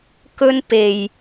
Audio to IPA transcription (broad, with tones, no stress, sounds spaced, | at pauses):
k ɵ˥ n p e˨ j